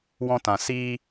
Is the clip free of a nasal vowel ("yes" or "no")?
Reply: no